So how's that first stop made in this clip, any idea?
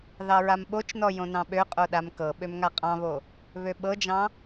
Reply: implosive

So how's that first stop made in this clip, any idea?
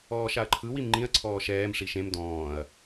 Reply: click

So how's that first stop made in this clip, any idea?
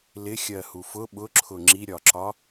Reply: implosive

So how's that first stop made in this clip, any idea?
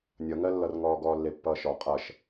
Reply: plain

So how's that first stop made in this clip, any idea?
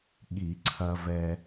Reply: implosive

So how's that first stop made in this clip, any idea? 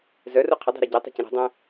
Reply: aspirated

